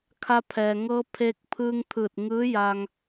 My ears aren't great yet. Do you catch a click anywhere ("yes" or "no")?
no